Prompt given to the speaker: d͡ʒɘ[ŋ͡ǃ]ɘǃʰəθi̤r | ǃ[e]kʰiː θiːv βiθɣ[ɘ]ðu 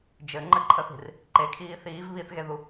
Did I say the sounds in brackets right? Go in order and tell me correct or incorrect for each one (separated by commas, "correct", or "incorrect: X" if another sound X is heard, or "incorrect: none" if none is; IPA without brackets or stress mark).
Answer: correct, correct, incorrect: e